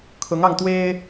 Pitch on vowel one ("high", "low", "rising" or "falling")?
rising